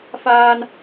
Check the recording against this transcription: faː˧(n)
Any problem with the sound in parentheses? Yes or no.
no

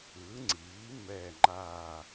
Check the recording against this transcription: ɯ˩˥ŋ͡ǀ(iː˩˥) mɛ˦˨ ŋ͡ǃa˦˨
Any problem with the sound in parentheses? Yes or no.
no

